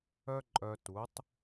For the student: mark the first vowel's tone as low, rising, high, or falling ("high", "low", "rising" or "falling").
high